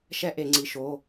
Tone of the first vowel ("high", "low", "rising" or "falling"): high